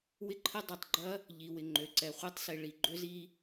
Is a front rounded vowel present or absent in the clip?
present